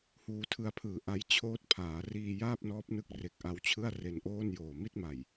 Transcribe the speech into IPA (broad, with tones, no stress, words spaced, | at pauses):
huː˧tʰɯ˧a̯pʰɯː˨˩ ʔa˦˥j t͡ɕʰoː˦˥t̚pʰaː˩˦ riː˧jaː˥˩p̚nɔː˦˥p̚nɯ˦˥k̚ re˨˩k̚ʔa˧wt͡ɕʰɯ˥˩a̯ re˧nʔoː˥˩njoː˨˩ mi˥˩t̚ma˨˩j